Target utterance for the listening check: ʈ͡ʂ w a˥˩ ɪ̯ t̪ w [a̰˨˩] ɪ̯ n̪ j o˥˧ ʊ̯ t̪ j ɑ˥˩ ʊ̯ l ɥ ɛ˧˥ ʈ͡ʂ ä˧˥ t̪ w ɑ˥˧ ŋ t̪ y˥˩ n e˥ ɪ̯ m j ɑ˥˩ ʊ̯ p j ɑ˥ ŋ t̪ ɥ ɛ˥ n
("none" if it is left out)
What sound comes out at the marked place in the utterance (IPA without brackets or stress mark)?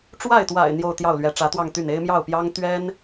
a̰˨˩